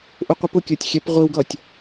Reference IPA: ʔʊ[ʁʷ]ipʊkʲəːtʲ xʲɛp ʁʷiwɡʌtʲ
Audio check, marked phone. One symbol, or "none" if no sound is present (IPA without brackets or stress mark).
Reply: qʷ